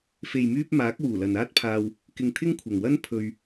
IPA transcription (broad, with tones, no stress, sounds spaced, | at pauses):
f e˨ j m yː˧ p̚ m aː˨˥ k̚ w uː˨˩ l ɐ˨ n aː˥ t̚ pʰ aː˧ w | k ɪ˧ ŋ t̪ʰ ɪ˥ ŋ kʷʰ ɐ˨ ŋ w ɐ˥ n pʰ ɵ˧ ɥ